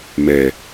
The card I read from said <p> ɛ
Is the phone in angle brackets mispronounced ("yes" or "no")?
yes